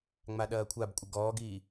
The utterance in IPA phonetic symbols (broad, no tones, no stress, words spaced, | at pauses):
ŋ͡maɗɐːkʷʰabkʷʼə ɡɔːɡiː